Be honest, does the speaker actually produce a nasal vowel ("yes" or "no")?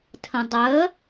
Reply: yes